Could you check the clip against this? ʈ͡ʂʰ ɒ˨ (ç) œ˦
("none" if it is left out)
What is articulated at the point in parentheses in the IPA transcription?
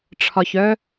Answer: ç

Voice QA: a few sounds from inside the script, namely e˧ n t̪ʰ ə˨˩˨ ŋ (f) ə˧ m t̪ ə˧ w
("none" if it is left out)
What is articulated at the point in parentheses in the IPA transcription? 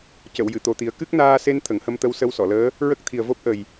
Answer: h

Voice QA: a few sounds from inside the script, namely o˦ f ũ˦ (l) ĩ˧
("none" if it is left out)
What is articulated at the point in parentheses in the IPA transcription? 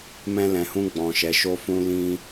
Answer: l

